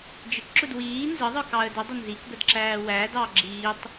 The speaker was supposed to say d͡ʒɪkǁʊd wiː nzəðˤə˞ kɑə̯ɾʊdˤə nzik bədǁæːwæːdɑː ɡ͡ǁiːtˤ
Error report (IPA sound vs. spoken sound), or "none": ɾ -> d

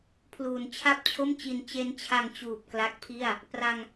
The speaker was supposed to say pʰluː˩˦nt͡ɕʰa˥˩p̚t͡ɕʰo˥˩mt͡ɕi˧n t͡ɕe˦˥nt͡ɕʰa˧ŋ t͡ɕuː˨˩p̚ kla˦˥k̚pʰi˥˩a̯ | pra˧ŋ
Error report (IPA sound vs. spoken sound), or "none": none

